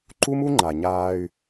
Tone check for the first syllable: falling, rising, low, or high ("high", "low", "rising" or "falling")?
high